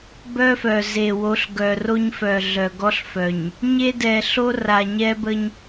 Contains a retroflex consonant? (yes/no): no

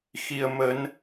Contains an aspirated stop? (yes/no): no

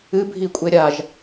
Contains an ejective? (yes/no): yes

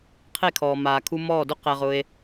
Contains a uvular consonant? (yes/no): yes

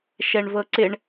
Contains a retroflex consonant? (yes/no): yes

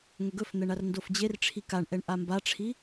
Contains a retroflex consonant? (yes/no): yes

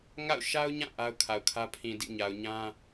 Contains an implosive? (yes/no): no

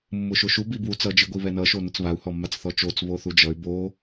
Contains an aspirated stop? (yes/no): no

